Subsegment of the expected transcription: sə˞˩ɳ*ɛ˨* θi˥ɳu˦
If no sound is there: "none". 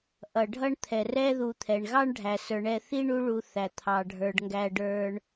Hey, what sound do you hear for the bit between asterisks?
ɛ˨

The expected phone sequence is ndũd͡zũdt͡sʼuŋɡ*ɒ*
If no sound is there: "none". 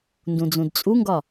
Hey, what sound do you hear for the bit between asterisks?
ɒ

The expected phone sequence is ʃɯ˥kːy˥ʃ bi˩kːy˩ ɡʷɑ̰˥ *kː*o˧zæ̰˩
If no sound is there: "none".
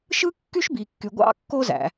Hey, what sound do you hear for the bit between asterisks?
kː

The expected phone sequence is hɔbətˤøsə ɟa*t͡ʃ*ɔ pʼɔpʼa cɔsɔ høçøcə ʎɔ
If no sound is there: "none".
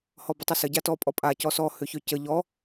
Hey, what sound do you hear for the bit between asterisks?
t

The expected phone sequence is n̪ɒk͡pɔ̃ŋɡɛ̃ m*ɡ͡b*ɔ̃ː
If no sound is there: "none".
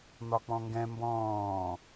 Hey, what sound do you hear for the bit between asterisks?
b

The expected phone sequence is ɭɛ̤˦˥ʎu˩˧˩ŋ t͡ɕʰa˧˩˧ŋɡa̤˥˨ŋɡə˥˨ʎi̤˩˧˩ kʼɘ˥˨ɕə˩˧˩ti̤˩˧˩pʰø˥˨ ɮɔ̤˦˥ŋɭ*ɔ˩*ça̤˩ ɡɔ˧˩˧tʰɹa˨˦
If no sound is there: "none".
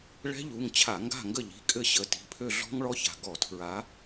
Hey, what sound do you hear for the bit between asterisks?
ɔ˦˥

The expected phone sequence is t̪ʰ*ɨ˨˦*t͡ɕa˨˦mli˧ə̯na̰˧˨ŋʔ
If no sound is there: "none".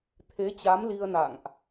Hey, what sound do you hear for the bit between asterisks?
e˨˦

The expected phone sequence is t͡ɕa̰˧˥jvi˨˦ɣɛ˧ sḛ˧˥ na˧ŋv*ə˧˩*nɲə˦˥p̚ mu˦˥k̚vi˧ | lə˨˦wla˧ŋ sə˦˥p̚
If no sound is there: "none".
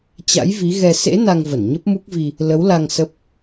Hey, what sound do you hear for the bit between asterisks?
ə˧˩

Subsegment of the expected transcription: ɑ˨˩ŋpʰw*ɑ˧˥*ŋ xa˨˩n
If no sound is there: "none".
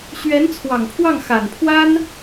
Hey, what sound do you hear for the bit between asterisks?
ɑ˥˩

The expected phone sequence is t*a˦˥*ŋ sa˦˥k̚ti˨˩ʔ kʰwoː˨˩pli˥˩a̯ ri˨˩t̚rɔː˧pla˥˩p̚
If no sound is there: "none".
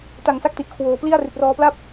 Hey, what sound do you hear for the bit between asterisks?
a˨˩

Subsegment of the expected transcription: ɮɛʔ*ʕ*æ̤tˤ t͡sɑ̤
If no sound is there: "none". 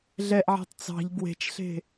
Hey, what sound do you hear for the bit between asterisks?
ʕ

